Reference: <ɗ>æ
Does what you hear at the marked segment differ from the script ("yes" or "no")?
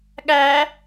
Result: yes